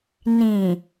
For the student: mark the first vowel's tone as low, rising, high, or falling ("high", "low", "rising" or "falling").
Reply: low